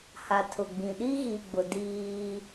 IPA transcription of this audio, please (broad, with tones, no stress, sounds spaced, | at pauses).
h a˨ tʰ ʊ˨ ɡ͡b ĩ˨ ɗ i˦ ɣ i˨ ɡ͡b ʊ˨ d iː˦